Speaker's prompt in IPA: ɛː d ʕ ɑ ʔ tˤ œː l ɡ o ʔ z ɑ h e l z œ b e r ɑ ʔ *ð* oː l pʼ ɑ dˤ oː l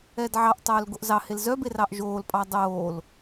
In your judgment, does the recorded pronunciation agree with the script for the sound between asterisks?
no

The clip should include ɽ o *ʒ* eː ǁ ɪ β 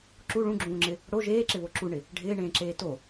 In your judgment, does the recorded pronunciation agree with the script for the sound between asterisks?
yes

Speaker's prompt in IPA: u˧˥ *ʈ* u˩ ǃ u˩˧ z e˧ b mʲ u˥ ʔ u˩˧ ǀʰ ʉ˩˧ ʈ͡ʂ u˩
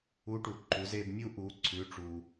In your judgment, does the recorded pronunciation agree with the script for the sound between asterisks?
yes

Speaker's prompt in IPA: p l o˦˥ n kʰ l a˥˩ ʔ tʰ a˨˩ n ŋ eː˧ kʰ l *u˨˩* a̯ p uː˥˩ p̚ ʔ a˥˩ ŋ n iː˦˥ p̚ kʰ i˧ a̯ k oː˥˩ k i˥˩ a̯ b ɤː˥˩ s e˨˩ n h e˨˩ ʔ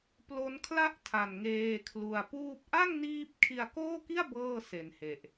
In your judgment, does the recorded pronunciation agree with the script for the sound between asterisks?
yes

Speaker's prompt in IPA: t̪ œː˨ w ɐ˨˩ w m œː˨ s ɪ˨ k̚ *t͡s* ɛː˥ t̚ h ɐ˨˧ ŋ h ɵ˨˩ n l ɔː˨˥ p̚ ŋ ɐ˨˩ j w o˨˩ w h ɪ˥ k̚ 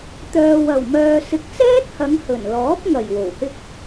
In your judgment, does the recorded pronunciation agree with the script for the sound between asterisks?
yes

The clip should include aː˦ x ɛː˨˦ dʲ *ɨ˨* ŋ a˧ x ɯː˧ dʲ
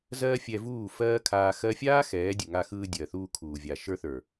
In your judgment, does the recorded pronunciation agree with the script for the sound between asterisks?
yes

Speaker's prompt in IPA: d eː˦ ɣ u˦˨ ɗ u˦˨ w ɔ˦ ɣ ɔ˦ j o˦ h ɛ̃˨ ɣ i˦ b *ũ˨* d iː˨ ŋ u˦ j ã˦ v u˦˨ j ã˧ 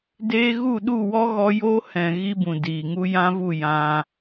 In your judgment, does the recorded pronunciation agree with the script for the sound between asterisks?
yes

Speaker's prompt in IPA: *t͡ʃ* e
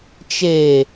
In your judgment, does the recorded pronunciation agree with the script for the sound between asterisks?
yes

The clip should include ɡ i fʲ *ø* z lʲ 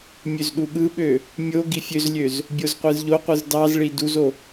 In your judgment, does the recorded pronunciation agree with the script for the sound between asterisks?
yes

